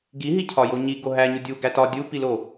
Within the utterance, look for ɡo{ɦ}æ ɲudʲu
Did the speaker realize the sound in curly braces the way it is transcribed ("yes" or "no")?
yes